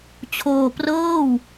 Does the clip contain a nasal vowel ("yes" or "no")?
no